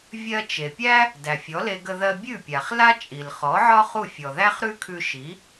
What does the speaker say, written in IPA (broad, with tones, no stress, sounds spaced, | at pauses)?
vʲ ɜ˧ t͡ʃ e˩ pʲ æ˥ | d æ˩ fʲ ɔ˩˥ l e˧ ɡ ə˧ ð ɜ˧ bʲ ʉ˥˩ pʲ a˩ χ l a˥ t͡ʃʼ i˩ l χ ɔ˩˥ ʕ ɒ˥ χ u˥˩ fʲ ɔ˩ ð æ˥ χ ɾ ʉ˥ kʰ ʉ˧ ʃ i˩˥